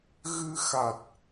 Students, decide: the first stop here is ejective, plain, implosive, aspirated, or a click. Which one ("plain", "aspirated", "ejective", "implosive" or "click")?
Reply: plain